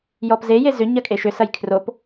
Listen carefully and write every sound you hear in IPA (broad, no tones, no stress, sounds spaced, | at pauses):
j ɔ p z e j e z ʏ ɲ ɐ kʼ e ʃ ʏ s ɐ j kʰ r o p